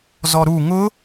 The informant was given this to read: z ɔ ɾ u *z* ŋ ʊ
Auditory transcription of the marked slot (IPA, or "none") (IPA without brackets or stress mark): none